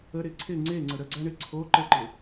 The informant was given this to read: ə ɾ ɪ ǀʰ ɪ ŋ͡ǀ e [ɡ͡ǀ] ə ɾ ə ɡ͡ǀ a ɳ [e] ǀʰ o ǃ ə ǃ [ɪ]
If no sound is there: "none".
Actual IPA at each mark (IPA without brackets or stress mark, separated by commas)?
ŋ͡ǀ, e, ɪ